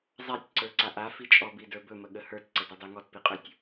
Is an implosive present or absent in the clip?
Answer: present